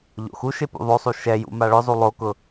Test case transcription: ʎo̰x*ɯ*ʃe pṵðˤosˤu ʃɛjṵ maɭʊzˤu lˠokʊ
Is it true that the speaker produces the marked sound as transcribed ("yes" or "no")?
no